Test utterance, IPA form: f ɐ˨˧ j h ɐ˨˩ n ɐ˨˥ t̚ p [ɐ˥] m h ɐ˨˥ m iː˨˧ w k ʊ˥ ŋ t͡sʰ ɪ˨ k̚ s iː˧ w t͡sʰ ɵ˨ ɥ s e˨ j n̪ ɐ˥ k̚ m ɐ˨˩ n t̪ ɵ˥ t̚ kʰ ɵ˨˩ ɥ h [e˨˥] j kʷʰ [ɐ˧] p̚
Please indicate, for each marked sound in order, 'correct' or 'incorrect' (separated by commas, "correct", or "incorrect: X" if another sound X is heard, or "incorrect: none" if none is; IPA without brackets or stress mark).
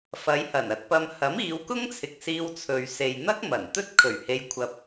incorrect: ɐ˧, incorrect: e˧, correct